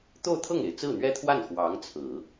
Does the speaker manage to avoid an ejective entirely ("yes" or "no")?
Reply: yes